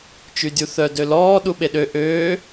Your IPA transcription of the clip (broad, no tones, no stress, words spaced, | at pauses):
t͡ʃydʲuθœ dølɔː ɗuɓeɗø ʔøː